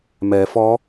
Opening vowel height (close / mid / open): mid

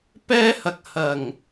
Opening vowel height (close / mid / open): mid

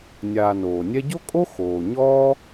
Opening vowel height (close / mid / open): open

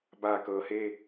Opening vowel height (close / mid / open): open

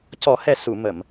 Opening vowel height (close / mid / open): mid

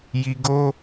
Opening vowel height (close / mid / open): close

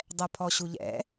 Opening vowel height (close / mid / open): mid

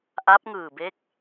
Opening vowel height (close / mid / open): open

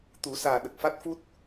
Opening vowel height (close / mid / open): close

